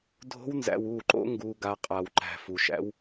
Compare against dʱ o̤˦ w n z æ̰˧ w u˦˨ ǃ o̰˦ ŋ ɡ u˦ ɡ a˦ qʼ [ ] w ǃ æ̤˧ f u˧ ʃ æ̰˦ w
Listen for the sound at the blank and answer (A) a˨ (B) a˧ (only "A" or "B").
B